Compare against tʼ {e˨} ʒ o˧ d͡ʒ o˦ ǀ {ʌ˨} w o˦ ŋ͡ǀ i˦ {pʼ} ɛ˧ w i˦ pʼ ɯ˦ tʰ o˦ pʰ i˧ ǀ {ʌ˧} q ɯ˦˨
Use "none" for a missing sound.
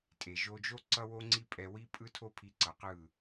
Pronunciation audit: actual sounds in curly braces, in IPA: e˨, ʌ˦, pʼ, ʌ˨

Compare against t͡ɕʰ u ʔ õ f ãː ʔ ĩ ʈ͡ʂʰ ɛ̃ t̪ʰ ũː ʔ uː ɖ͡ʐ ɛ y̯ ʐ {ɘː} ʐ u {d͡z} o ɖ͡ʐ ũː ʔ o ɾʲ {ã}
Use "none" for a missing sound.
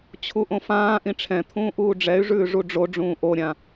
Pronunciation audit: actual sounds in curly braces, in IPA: ʉː, ɖ͡ʐ, ã

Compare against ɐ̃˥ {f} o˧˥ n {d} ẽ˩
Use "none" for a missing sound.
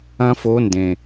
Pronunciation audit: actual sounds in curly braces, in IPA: f, d

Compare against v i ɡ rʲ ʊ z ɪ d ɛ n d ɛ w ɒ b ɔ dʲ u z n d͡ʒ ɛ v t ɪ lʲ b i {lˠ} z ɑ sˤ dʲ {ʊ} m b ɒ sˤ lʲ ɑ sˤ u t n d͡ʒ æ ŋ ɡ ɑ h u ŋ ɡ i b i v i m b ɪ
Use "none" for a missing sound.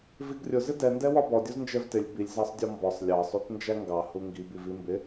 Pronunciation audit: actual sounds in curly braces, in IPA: lʲ, ɔ

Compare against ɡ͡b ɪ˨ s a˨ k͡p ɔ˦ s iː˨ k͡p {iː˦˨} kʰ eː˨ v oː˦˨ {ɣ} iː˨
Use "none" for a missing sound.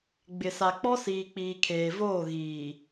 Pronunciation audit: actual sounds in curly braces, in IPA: iː˨, ɣ

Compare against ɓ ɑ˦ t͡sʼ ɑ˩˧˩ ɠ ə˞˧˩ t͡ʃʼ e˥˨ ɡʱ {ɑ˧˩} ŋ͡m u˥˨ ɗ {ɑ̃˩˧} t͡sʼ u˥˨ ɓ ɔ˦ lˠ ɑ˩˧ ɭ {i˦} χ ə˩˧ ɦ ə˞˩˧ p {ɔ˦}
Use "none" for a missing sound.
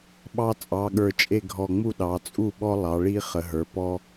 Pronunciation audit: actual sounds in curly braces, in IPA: ɔ˧˩, ɑ˩˧, i˦, ɔ˦

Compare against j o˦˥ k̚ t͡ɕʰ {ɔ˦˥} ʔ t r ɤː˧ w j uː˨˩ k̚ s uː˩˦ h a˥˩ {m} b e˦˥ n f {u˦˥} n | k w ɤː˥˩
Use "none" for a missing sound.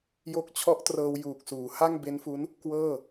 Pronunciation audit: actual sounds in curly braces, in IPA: ɔ˦˥, ŋ, u˦˥

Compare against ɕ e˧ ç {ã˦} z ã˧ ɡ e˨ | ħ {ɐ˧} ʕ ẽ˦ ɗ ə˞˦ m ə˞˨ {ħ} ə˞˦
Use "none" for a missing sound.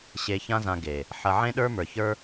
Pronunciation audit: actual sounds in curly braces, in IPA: ã˦, ɐ˧, ç

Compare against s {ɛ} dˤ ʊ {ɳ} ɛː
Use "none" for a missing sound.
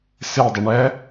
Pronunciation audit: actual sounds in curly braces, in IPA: ɪ, ɳ

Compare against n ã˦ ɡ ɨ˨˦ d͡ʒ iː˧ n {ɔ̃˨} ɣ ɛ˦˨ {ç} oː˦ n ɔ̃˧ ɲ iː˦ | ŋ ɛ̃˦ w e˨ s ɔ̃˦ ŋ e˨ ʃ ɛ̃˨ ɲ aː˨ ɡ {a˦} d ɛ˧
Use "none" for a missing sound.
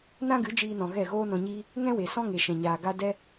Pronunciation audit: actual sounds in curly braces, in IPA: ɔ̃˨, ɣ, a˦

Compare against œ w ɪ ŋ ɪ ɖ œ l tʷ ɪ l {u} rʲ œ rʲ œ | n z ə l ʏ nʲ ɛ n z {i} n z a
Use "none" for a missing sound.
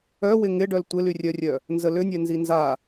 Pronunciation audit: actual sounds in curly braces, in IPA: y, i

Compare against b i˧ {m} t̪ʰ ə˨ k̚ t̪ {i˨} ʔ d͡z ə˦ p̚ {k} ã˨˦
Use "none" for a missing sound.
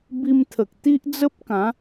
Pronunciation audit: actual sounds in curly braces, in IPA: m, i˦, k

